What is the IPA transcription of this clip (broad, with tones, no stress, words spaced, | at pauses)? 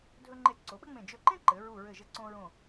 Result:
dʱɵ˧ŋ͡ǃe˧˩ ǀo˩˧ɓɘ˥ŋ͡mẽ˧˩ d͡ʒɵ˧˩ǃẽ˥ ǃɘ˩˧ ɹu˧˩ɹɘ˧˩ʒɘ˧ ǀõ˧ɹõ˧˩